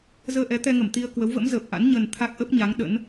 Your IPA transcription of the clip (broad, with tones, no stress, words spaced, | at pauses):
zəː˧ʔɛ˨˦t̪ɛ˧ŋə˧˩m t̪i˧ə̯ kwə˨˦wvə̰˧˥mzəː˨˩p̚ʔa̰˧˥n ɲə˨˩n t̪ʰa˦˥k̚ʔə˦˥p̚ɲa˨˦ŋ ɗə̰˧˥n